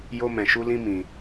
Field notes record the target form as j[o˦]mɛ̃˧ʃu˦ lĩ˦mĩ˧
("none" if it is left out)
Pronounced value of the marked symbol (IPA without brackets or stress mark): o˦